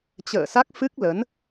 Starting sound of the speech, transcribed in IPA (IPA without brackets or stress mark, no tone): t͡ɕ